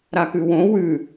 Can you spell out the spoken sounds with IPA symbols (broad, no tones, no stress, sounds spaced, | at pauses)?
ɾ a k ʉ w õ w ʉ